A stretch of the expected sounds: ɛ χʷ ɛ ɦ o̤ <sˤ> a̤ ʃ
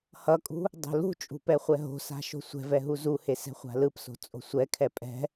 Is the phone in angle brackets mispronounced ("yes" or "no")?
yes